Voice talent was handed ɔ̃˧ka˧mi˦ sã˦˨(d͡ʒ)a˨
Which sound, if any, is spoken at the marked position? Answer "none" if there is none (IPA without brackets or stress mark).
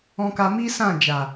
d͡ʒ